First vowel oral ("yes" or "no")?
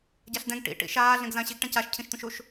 yes